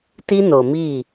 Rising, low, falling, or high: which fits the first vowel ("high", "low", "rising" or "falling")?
high